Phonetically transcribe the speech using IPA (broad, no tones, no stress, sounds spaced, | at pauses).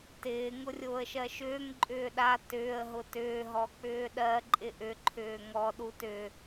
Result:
t ɪː ŋ ʊ rʲ ʊː ə̯ ʃ ɜ ʃ ʏː ŋ ǃʼ ʏː ɗ a t ʏː ə̯ ɦ ʊ t ʏː ɦ ɔ k͡p ʏː ɗ ɜ ǃʼ ɪ ʔ ʏ ǃʰ ʏː ŋ ɔ ɗ u t ʏ